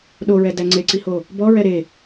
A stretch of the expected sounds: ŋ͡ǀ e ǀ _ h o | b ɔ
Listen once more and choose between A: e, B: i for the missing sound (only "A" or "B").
B